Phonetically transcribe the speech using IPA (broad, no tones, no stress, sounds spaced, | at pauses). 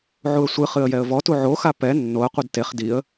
ʕ u ə̯ sʷ ɨ χ ɨ ə̯ j ɛ ə̯ v ɔ t u ʕ o x a p ɛ nː o ə̯ qʷ ɨ d t e χ d i ə̯